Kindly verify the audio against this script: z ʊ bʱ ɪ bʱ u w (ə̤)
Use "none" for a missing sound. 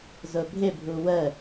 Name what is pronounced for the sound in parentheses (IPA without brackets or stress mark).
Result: ə